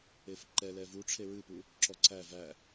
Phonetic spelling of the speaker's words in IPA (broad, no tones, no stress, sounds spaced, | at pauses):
e f ǃ ɛ l ɛ v u ʈ͡ʂʰ e ɹ ɨ p u | ǁ ɔ ǀ æ v æ